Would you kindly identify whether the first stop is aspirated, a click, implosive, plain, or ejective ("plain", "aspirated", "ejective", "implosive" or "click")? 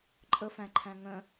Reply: click